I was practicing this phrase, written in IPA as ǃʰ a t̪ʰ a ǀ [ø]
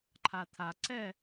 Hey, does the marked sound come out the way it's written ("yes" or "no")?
no